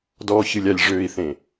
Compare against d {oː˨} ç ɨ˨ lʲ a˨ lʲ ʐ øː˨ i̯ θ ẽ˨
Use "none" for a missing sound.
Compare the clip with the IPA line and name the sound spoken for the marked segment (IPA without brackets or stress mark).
ɔː˨